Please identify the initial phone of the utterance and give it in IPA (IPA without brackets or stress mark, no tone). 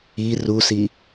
i